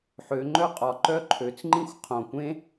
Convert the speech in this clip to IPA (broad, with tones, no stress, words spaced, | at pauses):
ħø˨˦ŋ͡ǃœ˥qʼɒ˧˩ ǃœ˥ǃʰø˨˦t͡s ŋ͡ǃĩ˥xʷ qʰõ˧˩kʷẽ˥